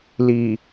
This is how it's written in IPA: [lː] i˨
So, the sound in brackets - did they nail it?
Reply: no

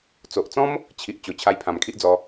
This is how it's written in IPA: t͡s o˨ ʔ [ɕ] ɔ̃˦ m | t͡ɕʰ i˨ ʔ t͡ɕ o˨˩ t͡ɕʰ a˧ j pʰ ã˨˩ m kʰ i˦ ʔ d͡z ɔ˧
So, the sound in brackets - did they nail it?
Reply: no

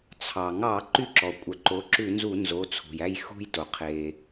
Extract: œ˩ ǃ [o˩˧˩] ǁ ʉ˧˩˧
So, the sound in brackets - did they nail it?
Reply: no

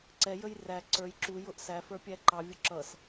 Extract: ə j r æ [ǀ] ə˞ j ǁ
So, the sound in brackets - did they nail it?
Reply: yes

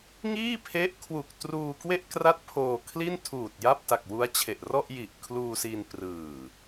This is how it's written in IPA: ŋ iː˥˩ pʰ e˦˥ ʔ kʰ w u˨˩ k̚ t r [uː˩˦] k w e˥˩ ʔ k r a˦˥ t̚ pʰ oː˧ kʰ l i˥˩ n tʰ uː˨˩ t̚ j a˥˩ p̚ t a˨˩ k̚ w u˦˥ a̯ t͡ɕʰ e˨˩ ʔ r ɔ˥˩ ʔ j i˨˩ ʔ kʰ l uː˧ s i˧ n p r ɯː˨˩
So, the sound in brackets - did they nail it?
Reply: no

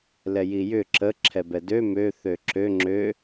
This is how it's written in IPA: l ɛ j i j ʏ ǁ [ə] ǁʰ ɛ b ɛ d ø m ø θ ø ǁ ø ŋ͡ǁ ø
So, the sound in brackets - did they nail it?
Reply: yes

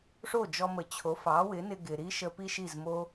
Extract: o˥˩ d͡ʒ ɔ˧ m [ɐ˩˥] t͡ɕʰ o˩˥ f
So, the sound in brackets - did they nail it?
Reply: no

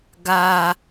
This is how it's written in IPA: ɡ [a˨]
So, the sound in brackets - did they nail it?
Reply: yes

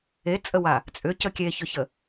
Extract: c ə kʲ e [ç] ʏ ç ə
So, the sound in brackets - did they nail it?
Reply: yes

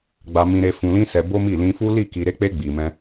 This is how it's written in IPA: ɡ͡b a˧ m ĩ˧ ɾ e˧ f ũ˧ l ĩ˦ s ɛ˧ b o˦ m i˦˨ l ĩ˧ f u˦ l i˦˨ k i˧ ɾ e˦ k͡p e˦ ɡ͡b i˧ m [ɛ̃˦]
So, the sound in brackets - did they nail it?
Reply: yes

